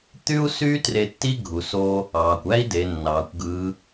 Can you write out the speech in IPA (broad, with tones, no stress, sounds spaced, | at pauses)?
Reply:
t̪ y˥ u̯ s yː˥ t r e˧ tː i˥ ɡʱ u˩ s o˧ | ɑː˩ kʷ æ˥ i̯ d e˩˧ nː ɑː˩˧ kʷ ɡ ɯː˧˥